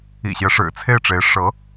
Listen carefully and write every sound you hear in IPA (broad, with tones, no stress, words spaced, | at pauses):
ḭ˨˩ɕjɛ˦ ʂɻ̩˨˩t͡sʰe˥˩ɪ̯ʈ͡ʂe˧˥ɪ̯ ʂɤ˧˥